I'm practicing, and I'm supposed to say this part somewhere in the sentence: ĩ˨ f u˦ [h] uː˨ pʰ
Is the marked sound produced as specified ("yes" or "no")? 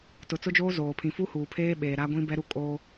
yes